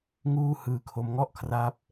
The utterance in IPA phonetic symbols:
ŋuː˥˩ hɯː˧kʰo˦˥m ŋɔ˥˩ʔkʰra˦˥p̚

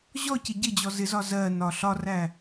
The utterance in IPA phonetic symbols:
ʑɔcɪ ɟɪ d͡ʑɔzɪzɒ zɜnɒ ɬɒræ

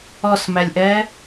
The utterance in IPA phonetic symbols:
ɔsmælʲʔɛ

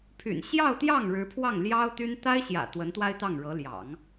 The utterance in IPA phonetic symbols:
pʰy̰˨˩n ɕjɑ˥˧ʊ̯t̪jɑ˥˩ŋ ɻɻ̩˧˥pʰwɑ˥˩ŋ ljɑ˥ʊ̯t̪y˥n t̪a˥ɪ̯ɕjä̰˨˩ t̪wə˧˥nt̪wa˥ɪ̯t̪ɑ˥˩ŋɻɤ˧˥ ljɑ̰˨˩˦ŋ

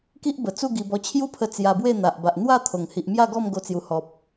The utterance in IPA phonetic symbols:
ki˦ʔbə˨˩t͡su˥˧ ɡi˧bɔ˧ t͡ɕʰju˥˧pʰə˧ t͡sja˧bwe˥˧ n̪a˨ʔ ba˨ʔn̪wa˥˧ t̪ʰo˨˩ŋ hi˨ʔmja˥˧ɡɔ˥˧m ɡo˧t͡sju˨˩ hɔ˨p̚

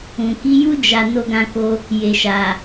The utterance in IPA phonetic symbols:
ũ˨ ki˨˦ju˦ d͡ʒa˧ no˧ɡã˧ko˧ | je˨ʃa˨

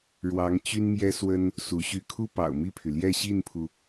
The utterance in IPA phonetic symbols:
ɻwɑ˧˥ŋ t͡ɕy˥nmjɛ˥swə˥n | su˧˥ɕy˥˩ kʰu˥pɑ̰˨˩ʊ̯mi˥˩pʰy˩ ljɛ˥˧ɕi˥˩npʰu˩

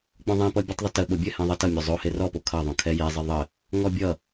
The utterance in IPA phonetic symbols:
k͡põðˤẽ pʌbʲɘtˤðˤətə ɓobʲɘhẽ ðˤʌtʌ mʲozˤo herɔpo kʰʌðˤõ kʰɛje zˤɘðˤə | ŋɔbʲʌ

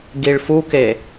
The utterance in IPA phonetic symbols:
ɡiɭfuke

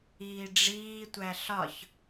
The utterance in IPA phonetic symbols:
iːɖ͡ʐiːtʷæ ɬɒç

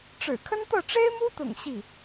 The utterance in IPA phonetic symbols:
ʈ͡ʂɻ̩˨˩kʰə˥nt̪ɤ˥˩ ʈ͡ʂe˥ɪ̯mu˥t̪ʊ̰˨˩ŋ ɕi˥˩

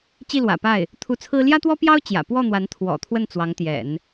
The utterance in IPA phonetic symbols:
t͡ɕi˥˩lwä̰˨˩pa˥˩ɪ̯ | t̪ʰu˧˥t͡sʰɹ̩˥ ljä˥t̪wɔ˥pjɑ˥ʊ̯ t͡ɕjä̰˨˩ pwɔ˥˩ n̪wa˧˥n t̪ʰwɔ̰˨˩t̪ʰwə˥˩n t͡swɑ˧˥ŋt̪jɛ̰˨˩˦n

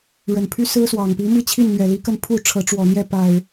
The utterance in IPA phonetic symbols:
ɻə˨˩npʰy˦sɹ̩˦swɑ˨˩ŋ pi˨˦mi˥˨t͡ɕʰi˥˨nn̪ɥɛ˨˩ li˨˦kə˥˨npʰu˥˨ ʈ͡ʂʰɤ˨˦ʈ͡ʂwɔ˨˩n̪jɛ˥˨ pa˨˩ɪ̯

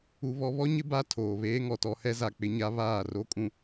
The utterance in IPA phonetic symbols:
u˦βɔ˦ βɔ˦ɲɪ˦ ba˦tʰoː˨ βeː˦ŋɔ˨tɔ˦ hɛ˦za˨k͡pɪ˦ɲa˦ βaː˦˨ro˦kʼũ˨

